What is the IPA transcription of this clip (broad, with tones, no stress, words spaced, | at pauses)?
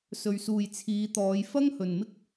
sɵ˨ɥsuː˨j t͡sʰiː˨˧t̪ɔː˨˧j fɐ˥ŋhɵ˨nmɪ˥k̚